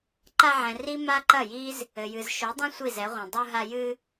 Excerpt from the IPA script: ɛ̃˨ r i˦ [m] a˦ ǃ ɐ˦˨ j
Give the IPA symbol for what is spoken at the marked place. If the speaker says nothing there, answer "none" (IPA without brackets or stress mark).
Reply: m